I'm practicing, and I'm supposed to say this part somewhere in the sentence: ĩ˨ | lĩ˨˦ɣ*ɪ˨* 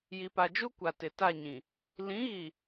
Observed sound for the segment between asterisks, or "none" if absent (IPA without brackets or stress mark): i˨